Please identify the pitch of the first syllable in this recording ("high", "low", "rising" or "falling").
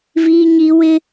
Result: high